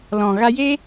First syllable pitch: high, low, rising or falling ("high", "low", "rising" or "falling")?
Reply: low